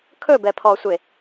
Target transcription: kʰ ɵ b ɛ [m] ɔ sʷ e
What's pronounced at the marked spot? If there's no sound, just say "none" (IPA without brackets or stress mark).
pʰ